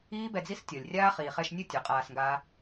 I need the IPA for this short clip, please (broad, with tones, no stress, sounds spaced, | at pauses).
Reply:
iː˦ b ɛ˧ d͡z i˦ s tʲ ɔ˨ lʲ rʲ aː˦ χ iː˨ χ ɛ˧ ʃ nʲ u˦˨ tʲ ɔ˨˦ qʼ aː˧ s ŋ ɡ aː˦